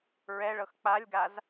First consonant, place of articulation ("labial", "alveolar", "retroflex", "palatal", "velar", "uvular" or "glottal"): alveolar